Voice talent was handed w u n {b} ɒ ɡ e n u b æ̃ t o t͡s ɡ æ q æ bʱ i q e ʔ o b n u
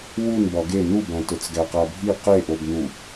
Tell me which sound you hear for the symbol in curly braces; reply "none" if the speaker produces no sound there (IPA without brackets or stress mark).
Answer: b